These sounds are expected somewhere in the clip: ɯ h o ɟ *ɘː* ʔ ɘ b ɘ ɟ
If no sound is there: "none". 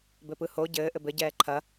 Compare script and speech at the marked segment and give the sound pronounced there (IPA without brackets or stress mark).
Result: ɘː